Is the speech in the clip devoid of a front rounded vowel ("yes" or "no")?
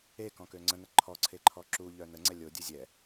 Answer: no